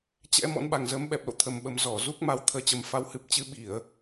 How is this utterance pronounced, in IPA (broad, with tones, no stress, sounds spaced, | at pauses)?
t͡ɕ ɛ̰˧˥ m ɔ̰˧˥ n ɓ a˨˩ ŋ z əː˨˦ m ɓ ɛ˨˩ p̚ l o̰˧˨ t̪ʰ ə˨˩ m ɓ ə˨˩ m z ɔ˧˩ z u˦˥ k̚ m a˨˦ w t̪ʰ əː˧ t͡ɕ ə˨˩ m f a˨˦ w h ɨ˨˩ p̚ t͡ɕ ɨ˧ ɓ i˧˩˨ ə̯